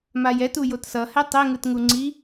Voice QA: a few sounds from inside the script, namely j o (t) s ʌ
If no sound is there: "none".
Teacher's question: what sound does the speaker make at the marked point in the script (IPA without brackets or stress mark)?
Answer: t